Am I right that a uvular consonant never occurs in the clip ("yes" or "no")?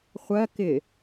no